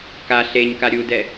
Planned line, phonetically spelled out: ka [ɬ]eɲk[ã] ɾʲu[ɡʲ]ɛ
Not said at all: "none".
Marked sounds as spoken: ɬ, a, d

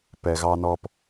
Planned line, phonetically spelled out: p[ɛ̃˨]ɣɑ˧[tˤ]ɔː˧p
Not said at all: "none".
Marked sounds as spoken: ɛ˨, n

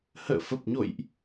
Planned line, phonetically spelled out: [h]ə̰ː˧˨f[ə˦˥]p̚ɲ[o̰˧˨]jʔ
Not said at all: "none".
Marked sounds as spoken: h, ə˨˩, o̰˧˨

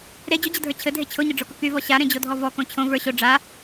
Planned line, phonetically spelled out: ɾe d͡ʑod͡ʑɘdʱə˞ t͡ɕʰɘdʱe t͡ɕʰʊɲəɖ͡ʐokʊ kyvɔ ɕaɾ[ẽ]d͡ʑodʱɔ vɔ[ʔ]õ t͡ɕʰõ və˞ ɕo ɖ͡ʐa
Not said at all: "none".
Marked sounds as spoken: ẽ, k

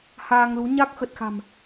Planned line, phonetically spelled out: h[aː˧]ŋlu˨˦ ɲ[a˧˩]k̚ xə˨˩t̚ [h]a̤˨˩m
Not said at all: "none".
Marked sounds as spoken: aː˧, a˦˥, x

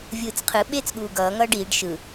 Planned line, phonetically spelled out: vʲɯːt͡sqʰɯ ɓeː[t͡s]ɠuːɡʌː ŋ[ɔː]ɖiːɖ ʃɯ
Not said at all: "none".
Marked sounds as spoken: t͡s, ʌː

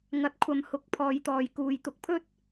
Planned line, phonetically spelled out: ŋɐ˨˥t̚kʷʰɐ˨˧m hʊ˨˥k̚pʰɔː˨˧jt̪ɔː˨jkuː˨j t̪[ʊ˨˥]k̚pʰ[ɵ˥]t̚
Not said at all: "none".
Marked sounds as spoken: ʊ˨˥, ɵ˥

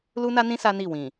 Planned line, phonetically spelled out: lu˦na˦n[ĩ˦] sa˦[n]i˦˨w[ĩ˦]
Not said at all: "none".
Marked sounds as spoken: ĩ˦, n, ĩ˨

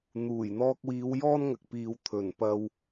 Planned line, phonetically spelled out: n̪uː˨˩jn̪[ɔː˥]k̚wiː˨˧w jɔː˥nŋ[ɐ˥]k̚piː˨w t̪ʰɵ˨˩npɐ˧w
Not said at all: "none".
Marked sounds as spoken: ɔː˧, ɐ˨

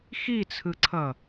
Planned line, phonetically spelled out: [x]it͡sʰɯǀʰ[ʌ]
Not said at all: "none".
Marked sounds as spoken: x, ʌ

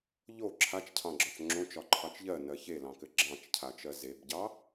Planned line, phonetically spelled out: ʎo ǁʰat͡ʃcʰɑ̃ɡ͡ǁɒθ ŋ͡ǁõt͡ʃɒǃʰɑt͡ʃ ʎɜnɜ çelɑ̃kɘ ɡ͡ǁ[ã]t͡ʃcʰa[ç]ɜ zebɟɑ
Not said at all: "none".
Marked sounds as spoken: ɑ̃, t͡ʃ

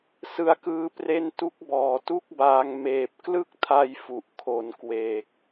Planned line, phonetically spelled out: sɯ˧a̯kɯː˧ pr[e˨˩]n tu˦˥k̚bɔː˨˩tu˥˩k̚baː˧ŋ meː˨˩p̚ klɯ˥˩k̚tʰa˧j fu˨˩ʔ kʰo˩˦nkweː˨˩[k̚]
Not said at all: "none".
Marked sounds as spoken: e˦˥, k̚

